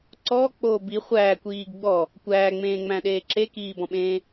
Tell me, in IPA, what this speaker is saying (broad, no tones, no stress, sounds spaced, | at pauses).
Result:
ǀ ɔ k͡p oː b i χʷ æː kʷ iː ɡ ɡ͡b ɔ | kʷ æː ŋ͡m ẽː ŋ͡m æ̃ ɗ eː ǁ e k iː b ɔ̃ ɓ ẽː